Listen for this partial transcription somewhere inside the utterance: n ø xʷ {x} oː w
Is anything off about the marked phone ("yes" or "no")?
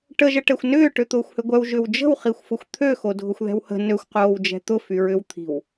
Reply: yes